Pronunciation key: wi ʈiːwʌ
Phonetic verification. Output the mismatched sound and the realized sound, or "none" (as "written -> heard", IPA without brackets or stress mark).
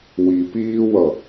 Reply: ʈ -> p